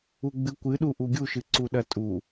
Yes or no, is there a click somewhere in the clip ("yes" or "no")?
yes